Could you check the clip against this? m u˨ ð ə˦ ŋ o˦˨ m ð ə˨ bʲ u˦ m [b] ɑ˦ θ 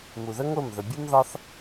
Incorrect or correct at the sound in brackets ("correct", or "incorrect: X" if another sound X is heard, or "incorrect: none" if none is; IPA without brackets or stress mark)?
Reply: incorrect: ð